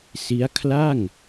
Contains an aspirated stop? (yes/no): yes